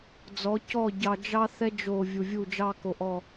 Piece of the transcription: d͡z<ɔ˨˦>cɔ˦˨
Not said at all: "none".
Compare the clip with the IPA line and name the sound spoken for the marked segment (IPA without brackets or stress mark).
ɔ˨˦